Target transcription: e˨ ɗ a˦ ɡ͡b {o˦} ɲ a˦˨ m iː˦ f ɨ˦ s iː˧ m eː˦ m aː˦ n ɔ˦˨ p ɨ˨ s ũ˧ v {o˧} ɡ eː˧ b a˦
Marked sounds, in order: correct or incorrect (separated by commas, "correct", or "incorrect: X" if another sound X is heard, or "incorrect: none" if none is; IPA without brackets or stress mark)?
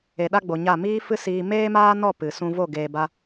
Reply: incorrect: o˨, incorrect: o˦˨